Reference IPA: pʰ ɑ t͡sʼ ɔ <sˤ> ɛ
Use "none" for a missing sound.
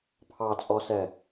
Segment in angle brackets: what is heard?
s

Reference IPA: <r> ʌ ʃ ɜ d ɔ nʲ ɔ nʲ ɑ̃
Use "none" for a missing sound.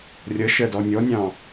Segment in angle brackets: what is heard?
rʲ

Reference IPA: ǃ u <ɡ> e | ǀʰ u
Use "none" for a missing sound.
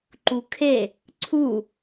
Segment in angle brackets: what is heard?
kʰ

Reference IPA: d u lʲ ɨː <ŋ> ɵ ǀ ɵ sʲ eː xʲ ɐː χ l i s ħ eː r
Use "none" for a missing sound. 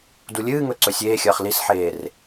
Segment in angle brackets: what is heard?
ŋ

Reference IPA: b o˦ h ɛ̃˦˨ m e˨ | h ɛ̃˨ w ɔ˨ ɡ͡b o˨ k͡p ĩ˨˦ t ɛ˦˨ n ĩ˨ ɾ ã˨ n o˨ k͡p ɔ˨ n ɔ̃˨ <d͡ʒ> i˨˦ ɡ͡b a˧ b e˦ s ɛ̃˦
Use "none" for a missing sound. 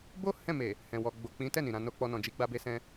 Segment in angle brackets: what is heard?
d͡ʒ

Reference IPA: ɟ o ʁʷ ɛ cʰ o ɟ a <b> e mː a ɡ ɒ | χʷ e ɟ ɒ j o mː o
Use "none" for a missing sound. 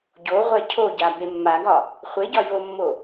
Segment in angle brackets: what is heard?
b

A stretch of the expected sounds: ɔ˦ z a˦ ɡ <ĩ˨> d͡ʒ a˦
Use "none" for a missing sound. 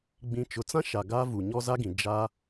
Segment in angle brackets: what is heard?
ĩ˨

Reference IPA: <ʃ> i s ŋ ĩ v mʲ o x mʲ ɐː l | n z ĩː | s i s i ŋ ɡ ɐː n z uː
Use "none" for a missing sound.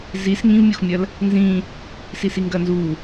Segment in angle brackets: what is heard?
z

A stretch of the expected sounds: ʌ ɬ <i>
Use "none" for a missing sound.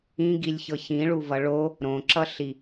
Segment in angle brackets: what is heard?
i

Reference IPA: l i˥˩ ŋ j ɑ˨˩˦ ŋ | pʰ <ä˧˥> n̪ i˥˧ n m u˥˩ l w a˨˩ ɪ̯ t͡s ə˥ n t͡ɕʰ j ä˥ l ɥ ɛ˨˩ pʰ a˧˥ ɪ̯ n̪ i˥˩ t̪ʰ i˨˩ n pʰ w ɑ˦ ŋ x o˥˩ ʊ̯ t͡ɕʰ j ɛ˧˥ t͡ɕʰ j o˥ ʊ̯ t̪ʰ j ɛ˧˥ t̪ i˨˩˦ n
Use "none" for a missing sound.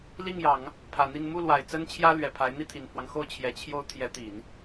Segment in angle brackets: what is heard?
ä˨˩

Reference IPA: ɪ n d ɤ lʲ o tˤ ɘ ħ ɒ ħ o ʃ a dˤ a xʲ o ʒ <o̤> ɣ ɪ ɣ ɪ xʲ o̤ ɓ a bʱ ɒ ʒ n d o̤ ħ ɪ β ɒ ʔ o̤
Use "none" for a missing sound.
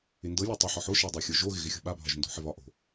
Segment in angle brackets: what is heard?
o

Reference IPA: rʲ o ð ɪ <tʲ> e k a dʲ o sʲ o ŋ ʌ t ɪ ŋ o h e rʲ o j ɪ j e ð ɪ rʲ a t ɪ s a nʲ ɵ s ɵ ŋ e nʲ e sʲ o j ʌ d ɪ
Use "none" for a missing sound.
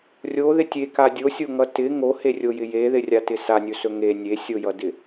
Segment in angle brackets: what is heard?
tʲ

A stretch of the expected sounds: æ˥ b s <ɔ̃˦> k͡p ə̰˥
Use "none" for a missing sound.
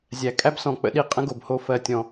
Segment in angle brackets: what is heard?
ɔ̃˨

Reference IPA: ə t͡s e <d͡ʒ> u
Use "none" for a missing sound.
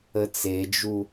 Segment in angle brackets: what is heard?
d͡ʒ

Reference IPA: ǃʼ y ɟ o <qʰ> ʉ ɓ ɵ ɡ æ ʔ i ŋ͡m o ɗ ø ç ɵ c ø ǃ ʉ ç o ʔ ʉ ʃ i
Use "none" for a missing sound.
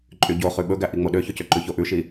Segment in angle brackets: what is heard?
χ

